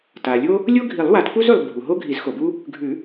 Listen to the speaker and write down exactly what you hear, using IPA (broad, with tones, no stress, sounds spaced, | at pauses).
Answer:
t a˩ lʲ o˥ | lʲ o˥ ɡʱ i˨˩˦ lˠ w a˨˩˦ t p u˥ z ʉ˩ lˠ bʱ u˩ ɦ o˥ ɡʱ i˨˩˦ z x o˩ b u˥ | ɡʱ ʉ˨˩˦